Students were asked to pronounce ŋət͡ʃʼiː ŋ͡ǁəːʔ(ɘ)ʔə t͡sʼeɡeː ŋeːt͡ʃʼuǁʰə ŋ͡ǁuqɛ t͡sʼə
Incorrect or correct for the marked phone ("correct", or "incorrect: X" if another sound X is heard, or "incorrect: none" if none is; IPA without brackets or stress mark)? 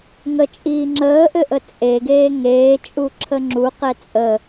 correct